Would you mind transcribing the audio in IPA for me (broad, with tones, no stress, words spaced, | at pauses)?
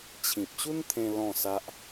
t͡ɕʰĩ˨p̚ɕu˦nt̪ʰẽ˧ lɔ̃˥˧sa˦ʔ